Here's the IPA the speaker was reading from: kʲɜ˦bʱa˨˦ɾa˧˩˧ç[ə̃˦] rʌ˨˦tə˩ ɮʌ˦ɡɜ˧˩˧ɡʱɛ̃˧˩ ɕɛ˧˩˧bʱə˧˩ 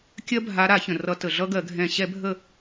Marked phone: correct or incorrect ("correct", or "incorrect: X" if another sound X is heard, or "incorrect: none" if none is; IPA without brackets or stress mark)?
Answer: incorrect: ə̃˩